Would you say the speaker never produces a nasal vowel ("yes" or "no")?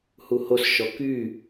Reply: yes